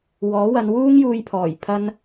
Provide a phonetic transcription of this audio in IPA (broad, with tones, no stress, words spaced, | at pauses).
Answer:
wɔː˨˥wɐ˨˧n wuː˥ŋjuː˧jpʰɔː˨˩j pʰɐ˧n